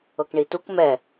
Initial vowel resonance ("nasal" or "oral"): oral